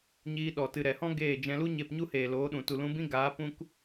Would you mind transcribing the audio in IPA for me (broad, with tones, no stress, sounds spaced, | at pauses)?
ɲ iː˧ ɗ ɔ˨ t ɨ˨ ɾ ɛ˨ h ɔ̃˦ ɡ eː˦˨ d͡ʒ ɛ̃˧ l u˦ ɲ e˦˨ p ɲ u˦ h eː˨ l oː˨˦ ɗ ũ˨ t u˨ l ũ˧ b ĩ˦ ɡ aː˨˦ p ũ˧ k